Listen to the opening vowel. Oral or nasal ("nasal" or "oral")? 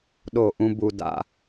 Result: oral